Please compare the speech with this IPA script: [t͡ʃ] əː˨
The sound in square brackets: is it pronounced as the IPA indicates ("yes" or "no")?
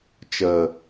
yes